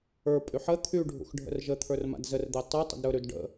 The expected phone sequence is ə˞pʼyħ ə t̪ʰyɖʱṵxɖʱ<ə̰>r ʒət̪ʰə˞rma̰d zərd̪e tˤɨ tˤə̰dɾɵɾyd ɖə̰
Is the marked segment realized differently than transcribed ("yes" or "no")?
no